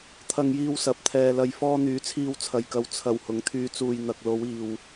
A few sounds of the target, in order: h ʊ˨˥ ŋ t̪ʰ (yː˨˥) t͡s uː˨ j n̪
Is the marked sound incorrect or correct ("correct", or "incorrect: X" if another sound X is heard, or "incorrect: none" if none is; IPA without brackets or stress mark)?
incorrect: yː˨˧